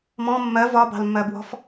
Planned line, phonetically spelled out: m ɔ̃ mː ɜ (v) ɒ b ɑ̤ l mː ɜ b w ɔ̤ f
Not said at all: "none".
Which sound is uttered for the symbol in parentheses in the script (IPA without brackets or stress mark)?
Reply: v